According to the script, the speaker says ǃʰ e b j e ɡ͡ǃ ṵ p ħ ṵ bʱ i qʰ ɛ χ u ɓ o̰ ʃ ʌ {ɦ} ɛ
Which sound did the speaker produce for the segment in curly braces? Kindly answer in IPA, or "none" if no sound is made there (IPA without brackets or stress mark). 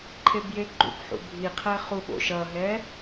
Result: ɦ